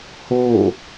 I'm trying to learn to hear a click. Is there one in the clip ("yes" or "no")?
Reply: no